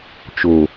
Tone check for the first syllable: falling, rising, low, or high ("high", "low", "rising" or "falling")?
low